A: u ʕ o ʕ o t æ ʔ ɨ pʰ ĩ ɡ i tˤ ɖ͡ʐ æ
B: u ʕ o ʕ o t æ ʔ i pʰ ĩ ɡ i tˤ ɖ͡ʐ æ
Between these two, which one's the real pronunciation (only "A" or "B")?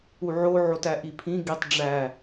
B